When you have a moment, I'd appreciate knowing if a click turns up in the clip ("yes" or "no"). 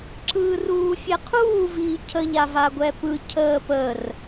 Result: yes